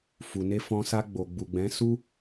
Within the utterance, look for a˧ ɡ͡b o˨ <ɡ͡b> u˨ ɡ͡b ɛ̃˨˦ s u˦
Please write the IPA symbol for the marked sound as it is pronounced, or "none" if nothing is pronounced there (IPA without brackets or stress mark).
ɡ͡b